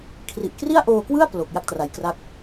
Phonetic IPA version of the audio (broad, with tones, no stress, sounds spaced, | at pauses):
kʰ r i˨˩ ʔ k r i˥˩ a̯ ʔ oː˧ k w ɯ˥˩ a̯ p l o˨˩ k̚ j a˥˩ k̚ t r a˨˩ j k r a˥˩ k̚